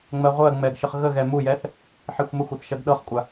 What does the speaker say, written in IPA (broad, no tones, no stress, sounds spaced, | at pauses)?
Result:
ŋ͡m ɜ ʁʷ ɜ ŋ͡m ɛ ɡ ʃ ə χ ɣ ə ɣ ɛ m u j ɛ θ | ħ i xʷ m ə xʷ ɤ θ ʃ ɜ ɡ ɗ ɤ χ kʷʼ a